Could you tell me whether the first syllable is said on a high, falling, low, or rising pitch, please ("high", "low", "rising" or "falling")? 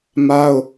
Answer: high